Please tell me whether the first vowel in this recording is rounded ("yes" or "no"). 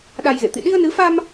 no